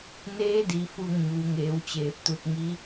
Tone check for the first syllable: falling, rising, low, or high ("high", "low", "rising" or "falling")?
rising